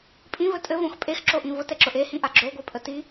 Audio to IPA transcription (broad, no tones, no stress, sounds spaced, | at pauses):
pʼ ĩ v ɘ tʼ ɘ v õ x pʼ e x ǁ o ʔ ĩ v ʊ t ɛ ǁ ʊ ʔ e h ĩ ʔ a ɡ͡ǁ o ɡʷ ɜ pʼ ə t i